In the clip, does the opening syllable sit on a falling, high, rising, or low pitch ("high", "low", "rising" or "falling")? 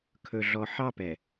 low